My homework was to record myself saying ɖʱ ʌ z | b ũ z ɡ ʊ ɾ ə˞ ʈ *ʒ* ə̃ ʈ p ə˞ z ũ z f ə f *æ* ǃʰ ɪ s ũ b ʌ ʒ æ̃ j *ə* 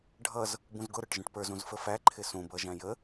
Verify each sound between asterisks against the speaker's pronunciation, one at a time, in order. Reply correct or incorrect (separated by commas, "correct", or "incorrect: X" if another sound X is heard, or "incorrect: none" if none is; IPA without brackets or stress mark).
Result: correct, correct, correct